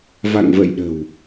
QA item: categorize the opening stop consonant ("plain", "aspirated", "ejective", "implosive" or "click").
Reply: implosive